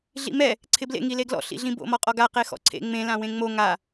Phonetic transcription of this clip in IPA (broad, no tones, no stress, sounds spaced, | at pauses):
ɮ ḭ m ɛ | ǀʰ ɪ b l ḛ ŋ i l e ɡ l ɔ̰ ɬ ḭ ɮ ĩ b o̰ m ɔ qʼ ɔ ɡ a q e x ɔ̰ ǀʰ ḛ ŋ͡m ẽ l ã w ẽ ŋ͡m o ŋ a